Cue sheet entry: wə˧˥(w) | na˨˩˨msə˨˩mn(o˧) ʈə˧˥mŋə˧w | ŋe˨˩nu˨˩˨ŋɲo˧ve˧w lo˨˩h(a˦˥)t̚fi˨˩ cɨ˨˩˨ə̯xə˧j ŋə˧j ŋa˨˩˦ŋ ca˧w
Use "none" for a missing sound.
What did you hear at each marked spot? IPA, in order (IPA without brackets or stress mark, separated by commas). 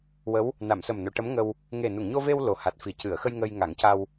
w, o˨˩˨, a˨˩